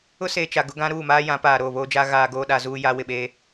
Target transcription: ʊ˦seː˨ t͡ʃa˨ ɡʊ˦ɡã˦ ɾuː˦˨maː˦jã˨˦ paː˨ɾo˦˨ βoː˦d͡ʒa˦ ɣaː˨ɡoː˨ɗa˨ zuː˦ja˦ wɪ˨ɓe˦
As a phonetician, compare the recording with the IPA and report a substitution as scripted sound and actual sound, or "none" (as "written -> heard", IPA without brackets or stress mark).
none